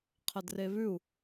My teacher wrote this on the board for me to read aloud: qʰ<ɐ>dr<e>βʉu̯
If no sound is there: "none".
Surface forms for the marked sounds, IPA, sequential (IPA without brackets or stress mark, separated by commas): ɐ, e